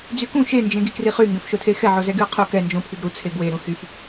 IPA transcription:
d͡z y k ũ ʃ e n d͡ʒ ẽ ɡ i k r i χ y ŋ ɡ ɛ̃ f ʃ o tʰ e x ɛ ʕ o z ɛ ɡ y ɐ̯ qʰ o k ɛ n d͡ʒ õ pʰ y ɡ ɾ u t͡sʰ e ɡ w e ɾ ũ h y f

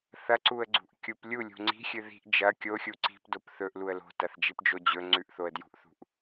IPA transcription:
θ ɐ ǀ u ə̯ ɡ͡ǀ ṳ ʔ kʲ u p lʲ u lʲ ṳ ŋ͡ǀ i̤ xʲ ɨ ð i̤ ʔ d͡ʒ ɐ kʲ o xʲ u ǀ i̤ p d o p θ ɵ ʔ l u ə̯ l o̤ t ɐ θ d͡ʒ i p d͡ʒ o d͡ʑ ɵ ŋ͡ǀ ʉ ʔ θ o ə̯ d j ṳ ʔ θ ṳ ʔ

